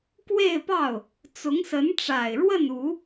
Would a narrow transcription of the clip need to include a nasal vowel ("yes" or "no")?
no